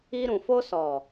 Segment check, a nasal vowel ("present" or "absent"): present